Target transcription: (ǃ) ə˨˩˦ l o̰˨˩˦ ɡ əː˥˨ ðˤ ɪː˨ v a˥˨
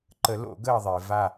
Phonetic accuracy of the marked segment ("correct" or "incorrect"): correct